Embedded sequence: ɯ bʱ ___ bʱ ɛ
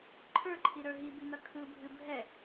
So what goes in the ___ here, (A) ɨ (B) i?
A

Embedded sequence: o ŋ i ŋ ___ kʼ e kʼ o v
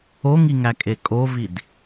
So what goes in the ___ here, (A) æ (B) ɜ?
A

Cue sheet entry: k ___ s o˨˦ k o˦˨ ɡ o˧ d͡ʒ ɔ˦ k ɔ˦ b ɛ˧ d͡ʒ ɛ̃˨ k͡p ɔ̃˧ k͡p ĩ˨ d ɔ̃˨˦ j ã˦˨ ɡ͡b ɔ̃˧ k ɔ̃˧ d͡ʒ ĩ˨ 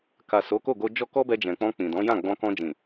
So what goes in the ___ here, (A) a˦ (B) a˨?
B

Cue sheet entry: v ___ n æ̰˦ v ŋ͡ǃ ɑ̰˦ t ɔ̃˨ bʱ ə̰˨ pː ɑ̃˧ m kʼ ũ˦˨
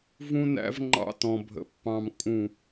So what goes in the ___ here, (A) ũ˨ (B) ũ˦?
B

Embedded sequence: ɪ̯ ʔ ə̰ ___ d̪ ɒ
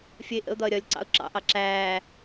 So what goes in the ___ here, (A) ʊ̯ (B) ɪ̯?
A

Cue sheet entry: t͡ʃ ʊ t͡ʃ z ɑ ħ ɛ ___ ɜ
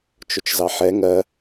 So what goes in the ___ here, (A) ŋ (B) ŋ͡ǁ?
A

